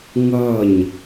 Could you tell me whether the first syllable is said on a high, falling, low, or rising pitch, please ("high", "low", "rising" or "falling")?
falling